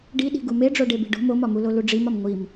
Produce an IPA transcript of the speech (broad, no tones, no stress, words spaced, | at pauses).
ɖiɗi̤ ɡumeɖ͡ʐoɖe bi̤ɖo̤ momɒmulo luɖ͡ʐimɒm ŋʷim